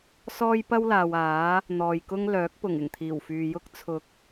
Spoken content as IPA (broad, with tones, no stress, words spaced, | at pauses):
sɔː˥jpɐ˥wlaː˨w aː˨˥ | n̪ɔː˨jkʊ˥ŋlœː˨˥k̚pʊ˨˩ŋ ɪ˨˩ŋt̪ʰiː˨˩wfyː˨jʊ˥k̚ t͡sʰʊ˨˥k̚